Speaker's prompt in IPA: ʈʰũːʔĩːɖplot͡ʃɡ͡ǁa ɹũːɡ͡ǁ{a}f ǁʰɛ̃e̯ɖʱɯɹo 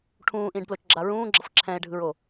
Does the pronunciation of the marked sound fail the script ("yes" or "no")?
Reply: yes